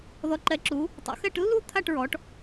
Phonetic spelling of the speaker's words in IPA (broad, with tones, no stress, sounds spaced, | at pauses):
ð ɔ˨˦ ǃ ɛ˨˦ ǁ u˨˦ | tˤ o̰˨˦ x ɛ˥˧ ʈ lː u˥˧ t̪ʰ a˥˧ ʈ ɹ ɔ˨˦ ʈ